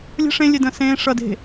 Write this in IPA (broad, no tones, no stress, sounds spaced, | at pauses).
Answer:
lʲ ə̤ ʂ ẽ lʲ e d ə̃ː s ẽː ʂ ʌ d e̤